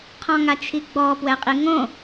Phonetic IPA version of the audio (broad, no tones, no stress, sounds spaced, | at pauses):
qʰ ɔ̃ ŋ a t͡ʃʰ i ɡ͡b ɔ p w ɛ qʼ i ŋ õ